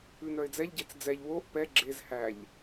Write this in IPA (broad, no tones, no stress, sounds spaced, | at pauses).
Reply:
ʉ n œ ɪ̯ d͡z ɛ ʎ ɟ e t͡s d͡z ɛ ʎ w o ʔ p ɛ ɡ͡ǁ e z h æ ʎ